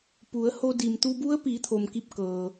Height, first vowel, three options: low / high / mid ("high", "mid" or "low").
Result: high